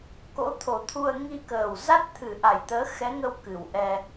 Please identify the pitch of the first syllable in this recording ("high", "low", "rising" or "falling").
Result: rising